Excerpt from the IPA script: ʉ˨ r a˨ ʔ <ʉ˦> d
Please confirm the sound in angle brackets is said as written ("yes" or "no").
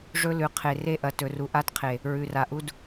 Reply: no